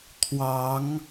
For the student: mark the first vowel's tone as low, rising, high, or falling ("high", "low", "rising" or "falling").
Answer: rising